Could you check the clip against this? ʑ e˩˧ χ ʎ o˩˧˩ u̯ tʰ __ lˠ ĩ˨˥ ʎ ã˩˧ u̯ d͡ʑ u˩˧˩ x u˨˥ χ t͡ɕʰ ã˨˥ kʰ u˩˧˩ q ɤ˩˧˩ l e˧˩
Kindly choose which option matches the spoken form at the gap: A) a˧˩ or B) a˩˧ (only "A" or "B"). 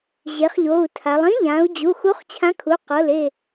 B